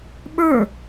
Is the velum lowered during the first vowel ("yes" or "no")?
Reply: no